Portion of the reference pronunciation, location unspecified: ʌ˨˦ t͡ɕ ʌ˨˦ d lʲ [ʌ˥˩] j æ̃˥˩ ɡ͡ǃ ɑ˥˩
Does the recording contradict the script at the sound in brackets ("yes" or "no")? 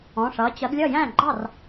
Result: no